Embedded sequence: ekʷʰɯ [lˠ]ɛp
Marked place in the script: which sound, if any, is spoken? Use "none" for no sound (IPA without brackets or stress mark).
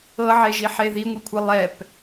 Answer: lˠ